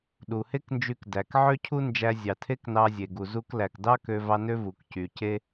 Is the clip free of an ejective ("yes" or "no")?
yes